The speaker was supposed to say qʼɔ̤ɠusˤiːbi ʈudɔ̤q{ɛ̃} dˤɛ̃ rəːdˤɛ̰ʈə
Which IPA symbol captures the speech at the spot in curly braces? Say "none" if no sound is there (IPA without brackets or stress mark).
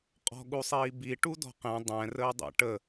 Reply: ɛ̃